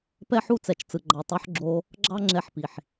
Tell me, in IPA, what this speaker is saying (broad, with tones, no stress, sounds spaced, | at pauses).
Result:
p ɛ˦ ħ u˦ t͡s ɛ˨ t͡ʃ t͡s ɯ˨ ɡ͡ǃ ɑ˨ tˤ o˧ ħ ɡ͡ǁ o˧ | ɡ͡ǁ ɑ˦ ŋ͡ǁ ɛ˧ ħ p i˨ ħ